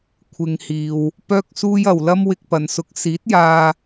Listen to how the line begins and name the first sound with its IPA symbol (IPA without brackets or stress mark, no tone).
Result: kʷʰ